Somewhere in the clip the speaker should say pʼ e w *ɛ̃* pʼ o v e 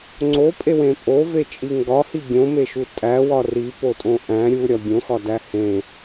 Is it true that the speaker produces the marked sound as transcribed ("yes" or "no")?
no